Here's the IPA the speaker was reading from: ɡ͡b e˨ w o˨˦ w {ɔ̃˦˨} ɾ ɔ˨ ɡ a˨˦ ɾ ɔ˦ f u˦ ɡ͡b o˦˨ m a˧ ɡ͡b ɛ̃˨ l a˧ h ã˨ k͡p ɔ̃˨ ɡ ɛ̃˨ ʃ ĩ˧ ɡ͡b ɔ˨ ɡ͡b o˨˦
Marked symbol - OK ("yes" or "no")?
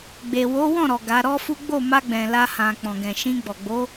yes